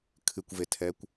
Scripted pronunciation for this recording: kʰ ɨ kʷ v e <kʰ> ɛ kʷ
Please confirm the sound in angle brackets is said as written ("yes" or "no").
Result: no